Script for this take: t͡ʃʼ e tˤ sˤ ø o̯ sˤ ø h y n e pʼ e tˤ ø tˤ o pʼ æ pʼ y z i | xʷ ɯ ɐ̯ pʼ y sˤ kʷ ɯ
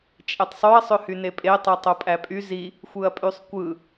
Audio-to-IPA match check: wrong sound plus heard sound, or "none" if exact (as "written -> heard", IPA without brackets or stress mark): o̯ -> ɐ̯